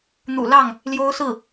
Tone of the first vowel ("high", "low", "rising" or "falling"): low